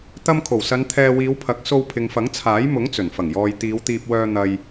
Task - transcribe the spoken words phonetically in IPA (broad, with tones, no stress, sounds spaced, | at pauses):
t̪ ɐ˧ m kʰ o˨˩ w s ɐ˨˧ n t̪ʰ ɛː˧ w iː˨˧ w pʰ ɐ˨˥ k̚ s o˧ w pʰ ɪ˨ ŋ f ɐ˨˥ ŋ t͡sʰ aː˨˥ j m ʊ˨˥ ŋ t͡s ɵ˨˩ n f ɐ˨˩ ŋ j ɔː˨ j t̪ iː˨˧ w t̪ iː˧ p̚ w œː˧ n̪ ɐ˨ j